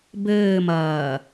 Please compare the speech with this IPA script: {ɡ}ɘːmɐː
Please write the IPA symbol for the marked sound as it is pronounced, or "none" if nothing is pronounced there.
b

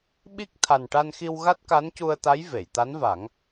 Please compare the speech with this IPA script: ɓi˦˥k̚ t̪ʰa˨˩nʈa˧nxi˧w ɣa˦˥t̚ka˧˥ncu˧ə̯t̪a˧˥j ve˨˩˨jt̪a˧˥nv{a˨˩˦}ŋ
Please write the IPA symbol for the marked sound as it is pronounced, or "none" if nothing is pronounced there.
a˨˩˦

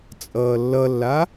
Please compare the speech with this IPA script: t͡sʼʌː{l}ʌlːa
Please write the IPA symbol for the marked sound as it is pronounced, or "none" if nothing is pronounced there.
lː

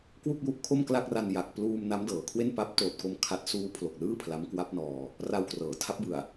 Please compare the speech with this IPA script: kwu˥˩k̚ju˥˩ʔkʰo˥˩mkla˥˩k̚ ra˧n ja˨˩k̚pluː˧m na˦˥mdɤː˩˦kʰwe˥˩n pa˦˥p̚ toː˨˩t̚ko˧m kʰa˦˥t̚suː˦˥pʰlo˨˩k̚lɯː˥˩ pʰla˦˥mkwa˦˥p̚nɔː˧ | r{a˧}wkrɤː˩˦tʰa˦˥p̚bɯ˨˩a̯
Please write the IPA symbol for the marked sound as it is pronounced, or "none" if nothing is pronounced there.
a˧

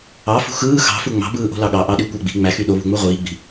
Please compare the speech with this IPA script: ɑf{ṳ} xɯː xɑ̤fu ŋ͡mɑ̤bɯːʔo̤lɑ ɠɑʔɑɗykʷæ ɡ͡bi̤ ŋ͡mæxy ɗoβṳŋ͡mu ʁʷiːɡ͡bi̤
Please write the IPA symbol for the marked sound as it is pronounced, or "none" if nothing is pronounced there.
ṳ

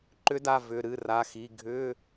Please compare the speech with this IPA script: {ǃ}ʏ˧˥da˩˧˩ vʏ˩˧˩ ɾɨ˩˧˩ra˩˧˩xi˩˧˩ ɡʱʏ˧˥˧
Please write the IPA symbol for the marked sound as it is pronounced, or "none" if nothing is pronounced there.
ǃ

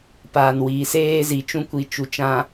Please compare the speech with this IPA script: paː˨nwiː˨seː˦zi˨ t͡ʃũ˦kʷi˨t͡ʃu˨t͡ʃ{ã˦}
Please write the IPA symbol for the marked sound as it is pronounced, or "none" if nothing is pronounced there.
ã˨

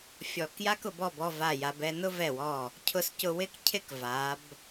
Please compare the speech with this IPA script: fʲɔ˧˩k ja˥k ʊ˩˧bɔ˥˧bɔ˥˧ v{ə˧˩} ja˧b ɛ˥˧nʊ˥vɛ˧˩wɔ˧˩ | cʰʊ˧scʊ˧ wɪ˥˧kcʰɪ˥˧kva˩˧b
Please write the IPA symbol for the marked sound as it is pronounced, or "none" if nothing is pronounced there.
a˧˩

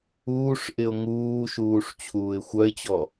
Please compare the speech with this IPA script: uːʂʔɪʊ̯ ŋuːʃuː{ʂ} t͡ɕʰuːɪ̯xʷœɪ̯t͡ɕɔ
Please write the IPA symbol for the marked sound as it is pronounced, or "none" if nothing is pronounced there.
ʂ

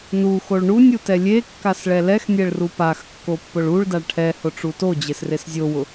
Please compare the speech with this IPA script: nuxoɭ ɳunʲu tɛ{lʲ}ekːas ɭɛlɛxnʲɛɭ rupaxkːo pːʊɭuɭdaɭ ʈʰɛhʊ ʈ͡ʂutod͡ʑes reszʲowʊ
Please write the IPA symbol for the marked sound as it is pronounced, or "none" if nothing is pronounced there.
lʲ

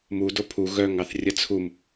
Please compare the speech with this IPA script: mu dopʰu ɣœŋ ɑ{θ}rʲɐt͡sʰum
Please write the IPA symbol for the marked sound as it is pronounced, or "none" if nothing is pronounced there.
θ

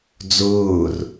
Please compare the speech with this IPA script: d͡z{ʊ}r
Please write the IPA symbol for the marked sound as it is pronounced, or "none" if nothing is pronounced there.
ʊː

